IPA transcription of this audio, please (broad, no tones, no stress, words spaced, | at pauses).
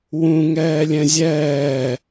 wũ ŋɛːlʲɛ̃zʲɛː